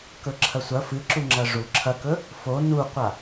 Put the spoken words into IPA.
kɵǁʰɐsʷɐ fɨǁuŋ͡ǁɐ ʐu ǁʰɐkɵ | fo nuqʷa

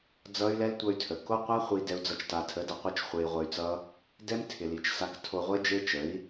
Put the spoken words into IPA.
d͡zʌ˦y̯lɛ˦l tʷʌ˧y̯tʰə˨ ko˦qʷa˦ χʷi˧ dɛ˧u̯d͡zʌ˧t͡ʃ ta˨tʰə˨˦dʌ˨qʷɛ˧t͡ʃ χʷe˧i̯ʁʷə˧y̯t͡sʌ˦ | dɛ˦mtʰɪ˨li˨t͡ʃ sa˧ktʰo˧ʁʷe˦ d͡ʒe˦t͡ʃə˨˦i̯

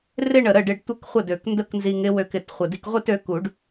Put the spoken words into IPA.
rɪ˥˧ɳə˨˩ ɾə˥˩ɖɪ˧ɖ tʷɪ˥˧k χʷə˥˩dø˨˩˦kndə˥˧k nzi˧ŋɪ˧˥ wø˧kɪ˨˩t χʷə˨˩di˧kʁʷi˥˧t ø˧˥ku˨˩˦ɖ

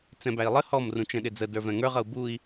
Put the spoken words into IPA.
t͡sɛ̃bæi̯lˠə hɔm rũt͡ʃɛ̃ɗɪd͡zə də˞vɛ̃ŋə˞ʁ ʌu̯bui̯

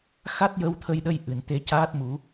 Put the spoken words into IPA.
xa˦˥t̚jə˧wt̪ʰə˧jɗə˧j ʔɨ˨˩˨nt̪e˧caː˦˥t̚mu˨˩˦

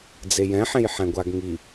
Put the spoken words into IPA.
d͡zejɛ̃ħẽj ħɛ̃ɡʷaɡŋi

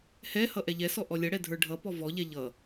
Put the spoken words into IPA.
hɛhʌ ʔɛʎɛsɔ ʔɔlʲʌɽɛ dʱə˞ɖʱʌpɔ vɔʎɛ ʎʌ

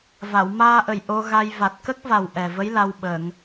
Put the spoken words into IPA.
va˨˩˨wmaː˧ ʔə˨˩j ʔo˧ɣa˧j va˨˩t̚kə˦˥k̚va˨˩w ʔɛ˨˩və˧˥j la˧wɓə˨˩˨ŋ

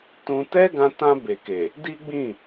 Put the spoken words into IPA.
tũ˧ tɛ˦ɡã˧ tã˧ be˨ke˨ | di˦ɡ͡bĩ˦˨

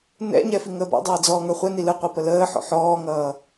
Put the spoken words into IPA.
nɛ̰ɲɛ fiŋəːbɔ̰dˤʌː d͡zɔːŋə˞χʷɛni lɯqʷi pələːħɔ̰ ħɔːŋʌː

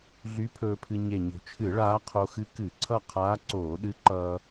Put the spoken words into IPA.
ɮy˧˥pʰɵː˧pʰɨ˧ ɲe˨˩ɲo̤˨˩t͡ʃʰɨ˧˩˧ ɭaː˧˥ qʰo˧xɨ˧˥ kɨ˧˩˧ǀʰʌ˥˨qʰaː˧˥ ǀoː˧˩˧ɗɨ˧˥ǃʌː˧

